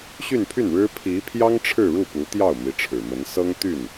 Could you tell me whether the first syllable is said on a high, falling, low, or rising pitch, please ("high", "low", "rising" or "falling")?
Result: falling